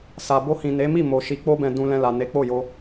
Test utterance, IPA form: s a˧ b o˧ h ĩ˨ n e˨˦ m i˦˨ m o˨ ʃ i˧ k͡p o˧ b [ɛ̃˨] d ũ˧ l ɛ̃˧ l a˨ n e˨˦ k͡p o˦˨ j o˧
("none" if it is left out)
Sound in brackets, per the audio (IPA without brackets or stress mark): ɛ̃˨